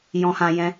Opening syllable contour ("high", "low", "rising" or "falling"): high